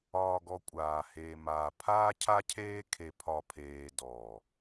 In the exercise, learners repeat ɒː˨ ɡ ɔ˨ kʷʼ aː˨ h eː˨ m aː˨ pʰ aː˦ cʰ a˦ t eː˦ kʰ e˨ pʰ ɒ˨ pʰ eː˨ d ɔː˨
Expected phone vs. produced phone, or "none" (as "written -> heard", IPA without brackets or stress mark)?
t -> cʰ